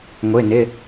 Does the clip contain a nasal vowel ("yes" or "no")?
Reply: no